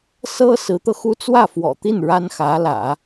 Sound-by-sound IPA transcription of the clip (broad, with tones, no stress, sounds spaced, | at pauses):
s ɤ˥ s ɹ̩˧˥ t̪ ɤ˧ x u˥ t͡s w ä˥˩ f w ɔ̰˨˩ t̪ i˥˩ n ɻ a˥ n x ä˧˥ l ä̰˨˩˦